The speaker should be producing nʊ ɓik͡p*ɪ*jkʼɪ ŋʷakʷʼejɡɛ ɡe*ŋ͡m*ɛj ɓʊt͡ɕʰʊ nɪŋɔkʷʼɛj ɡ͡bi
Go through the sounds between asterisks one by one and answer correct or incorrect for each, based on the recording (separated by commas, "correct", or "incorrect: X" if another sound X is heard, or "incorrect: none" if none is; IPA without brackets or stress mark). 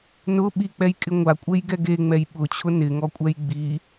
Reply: incorrect: ɛ, correct